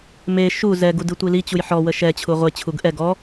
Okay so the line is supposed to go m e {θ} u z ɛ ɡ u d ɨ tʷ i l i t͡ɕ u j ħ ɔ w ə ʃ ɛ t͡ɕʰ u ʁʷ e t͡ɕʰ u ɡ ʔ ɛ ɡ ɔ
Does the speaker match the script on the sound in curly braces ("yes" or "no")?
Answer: no